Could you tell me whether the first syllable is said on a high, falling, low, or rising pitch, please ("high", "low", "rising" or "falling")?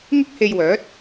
high